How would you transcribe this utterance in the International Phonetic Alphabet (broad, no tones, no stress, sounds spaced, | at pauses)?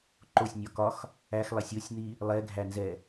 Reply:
ǃ o sʲ nʲ ɒ k ɒ x | æ x lˠ ɛ sʲ o sʲ n̪ i | lˠ ɛ ɡʱ æ n z ɛ